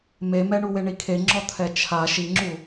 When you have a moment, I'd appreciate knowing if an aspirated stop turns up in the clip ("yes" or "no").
yes